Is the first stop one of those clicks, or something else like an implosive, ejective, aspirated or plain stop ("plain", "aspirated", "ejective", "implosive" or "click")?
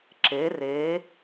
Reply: click